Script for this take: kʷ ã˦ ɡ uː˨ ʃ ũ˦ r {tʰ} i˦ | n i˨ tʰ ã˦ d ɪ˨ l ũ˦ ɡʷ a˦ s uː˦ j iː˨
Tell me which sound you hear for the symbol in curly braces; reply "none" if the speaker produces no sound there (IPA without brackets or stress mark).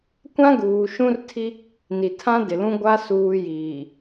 tʰ